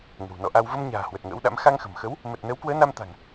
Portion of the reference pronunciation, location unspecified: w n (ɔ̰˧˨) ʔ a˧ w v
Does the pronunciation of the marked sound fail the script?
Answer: no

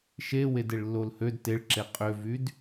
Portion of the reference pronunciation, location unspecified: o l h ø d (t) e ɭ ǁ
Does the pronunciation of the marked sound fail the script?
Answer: no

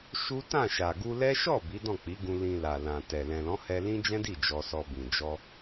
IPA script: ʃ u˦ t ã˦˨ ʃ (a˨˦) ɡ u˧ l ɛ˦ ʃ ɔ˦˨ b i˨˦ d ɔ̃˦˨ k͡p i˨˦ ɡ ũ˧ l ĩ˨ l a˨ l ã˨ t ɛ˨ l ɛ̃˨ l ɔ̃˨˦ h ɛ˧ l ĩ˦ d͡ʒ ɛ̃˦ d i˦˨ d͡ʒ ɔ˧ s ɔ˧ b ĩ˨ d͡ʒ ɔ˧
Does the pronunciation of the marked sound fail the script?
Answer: yes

